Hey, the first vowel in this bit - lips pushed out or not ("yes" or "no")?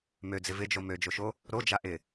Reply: yes